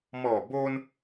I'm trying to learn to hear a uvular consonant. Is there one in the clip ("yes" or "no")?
no